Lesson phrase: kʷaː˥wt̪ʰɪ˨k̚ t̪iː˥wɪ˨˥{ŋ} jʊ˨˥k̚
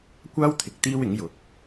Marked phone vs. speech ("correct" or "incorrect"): correct